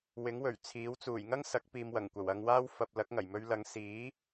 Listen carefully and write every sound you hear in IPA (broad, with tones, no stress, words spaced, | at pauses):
wɪ˨˥ŋwɵ˨˩ɥ t͡sʰiː˨˥w t͡suː˨˩jŋɐ˥ŋ sɐ˨˥k̚piː˨mwɐ˨˩ŋkʷɐ˨˩w ɐ˧ŋwaː˥w fɐ˧p̚ lɐ˨˥k̚ŋɐ˨˩jmɵ˧ɥlɐ˨˧ŋ siː˨˥